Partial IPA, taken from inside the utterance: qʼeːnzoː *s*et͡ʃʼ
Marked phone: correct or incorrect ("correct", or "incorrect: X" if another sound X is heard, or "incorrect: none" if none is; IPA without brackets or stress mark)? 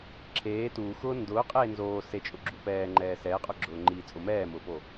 correct